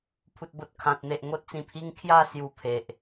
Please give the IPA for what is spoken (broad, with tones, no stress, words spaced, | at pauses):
pʰu˨t̚bo˨t̚kʰã˨t̚n̪e˨ʔ ŋo˦t̚t͡sĩ˧pʰi˦ŋ kʰja˥˧ sju˧pʰe˨ʔ